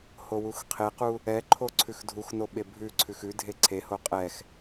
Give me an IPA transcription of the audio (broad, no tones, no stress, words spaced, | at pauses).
howuxqʰequ | ɛǃʰo ǀʰʉxdʱuxno ɓebʱʉǀʰʉx ʉ dʱeǀʰeho qʼɛx